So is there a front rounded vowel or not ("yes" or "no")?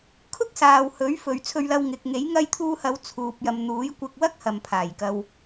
no